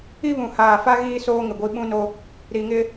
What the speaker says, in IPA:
i˦βũ˨haː˨fa˦ ɣiː˦soː˦ ŋɪ˨ɡʷi˦ ɓũ˦no˦ | ɾi˨ŋɪ˦

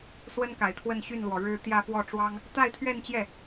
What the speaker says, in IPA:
swə˥nka˨˩ɪ̯t̪ʰwə˥˧n ɕy˥˩nlwɔ˩ɻɻ̩˥˧ t̪jä˥˧fwɔ˥˩ ʈ͡ʂwɑ˥ŋ | t̪a˥˧ɪ̯t̪ʰɥɛ˥˧nt͡ɕjɛ˥˩

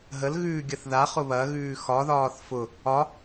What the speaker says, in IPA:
ɦəlɣʉːɡʲɐθ ðaχʊ βɐɣʉː xɒðɒːθ fʊ | ɒ

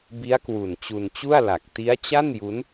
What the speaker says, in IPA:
bi˦˥a̯kwu˨˩n t͡ɕu˧nt͡ɕu˥˩a̯la˨˩k̚ ti˦˥a̯t͡ɕa˥˩n ju˦˥n

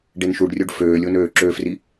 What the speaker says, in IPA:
ɖenʃuɖrʲoɖ føːlʲonøː ǁøfri

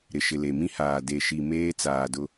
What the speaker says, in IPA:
ɾɪ˨ʃɪ˨le˨ mĩ˦haː˨ de˨ʃi˨ meː˦ t͡saː˨dʊ˦

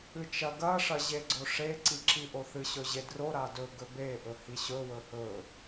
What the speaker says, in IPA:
ɨt͡ʃɐ ɡɐʂɐʑeɡ͡ǀo ʂeǀiǁiʔo θɨɕɵʑe dro ɾadɵ ɡɵbe ʔɵhiɕɵ wɵhɵ

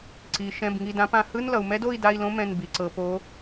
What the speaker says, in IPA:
ǀi˩ ʃɛ̃˩˧˩bŋi˩˧˩dã˨˦pã˨˦ hɯ˧˥˧nlʌ˩u̯mɛ˦˥d o˧˥˧i̯da˧˥˧i̯lõ˦˥mɛ̃˩˧˩n bi˩ǀɤ˩po˨˦

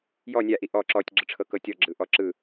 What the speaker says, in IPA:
jɔ nʲaʔi ʔɔ ǁɔtʲɡ͡ǁɯʈ͡ʂʰɤkɤ tʲɔɡ͡ǁɯʔɔ ǁɯ

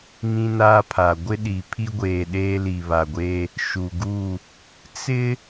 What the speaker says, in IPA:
ŋĩ˦naː˦pʰa˨ ɡʷɪ˦ɗi˨pʰi˦ɡʷeː˨ ɗeː˦li˨βa˨ɡʷeː˦ | ʃu˨ɡu˦˨ | t͡sɪ˦

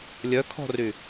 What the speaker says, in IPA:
lʲœkʰɔ̤ry

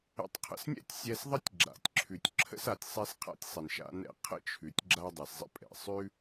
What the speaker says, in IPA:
ə̰˧tˤ qʰə̰˧snʲɛ̰˥tʲsʲɛ˧s ðˤə˥tʲɡ͡ǁa̰˩tʲǁʰʉ˩tʲ ǁʰə̰˥sa˩tʲ sˤɛ˥sqʰa̰˥tʲsˤɛ˩n ʃa̰˧nɛ̰˧ qʰə̰˥t͡ʃʰʉ˩tʲ ɡ͡ǁa˥dˤɛ˩szˤə̰˥pʼɛ̰˩ sˤʉ˥

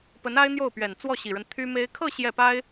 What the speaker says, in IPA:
pə˧˥na˥ɪ̯n̪jo˥˩ʊ̯pɥɛ˨˩n t͡swɔ˥˩ɕi˨˩ɻə˦n t̪ʰy˥me˥ɪ̯ kʰɤ˥˧ ɕjɛ˥˩pa˥ɪ̯

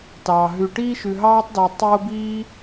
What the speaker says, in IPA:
tɑː˩ɦʉ˨ ʈiː˥ʃʉ˨ɦɑː˥tˤdo˨ə̯ tˤo˥ biː˦

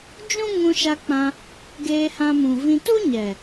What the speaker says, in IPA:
d͡ʒũ˦ŋũ˧ ʃa˧k͡pã˧ | ɡeː˧hã˧mũ˨vĩ˧ tu˦ɲɛ˨

